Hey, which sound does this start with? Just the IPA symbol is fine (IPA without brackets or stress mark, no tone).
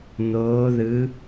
n